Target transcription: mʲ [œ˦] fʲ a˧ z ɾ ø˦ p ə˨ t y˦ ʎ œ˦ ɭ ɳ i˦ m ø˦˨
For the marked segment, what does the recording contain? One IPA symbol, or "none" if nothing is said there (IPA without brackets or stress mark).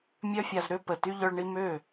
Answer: œ˦